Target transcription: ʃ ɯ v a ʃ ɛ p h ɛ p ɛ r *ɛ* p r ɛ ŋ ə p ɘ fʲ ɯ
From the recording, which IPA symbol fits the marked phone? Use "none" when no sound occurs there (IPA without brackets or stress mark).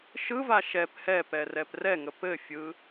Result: ɛ